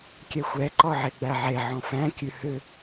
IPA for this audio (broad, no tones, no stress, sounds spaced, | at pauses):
kʲ ɛ xʷ ɛ ǃ ɔ ʕ e ɡ͡b æ ʕ e ʕ ɔ̃ f æ̃ kʲ ʉ h ʏ